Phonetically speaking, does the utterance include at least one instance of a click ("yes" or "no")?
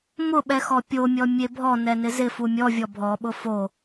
no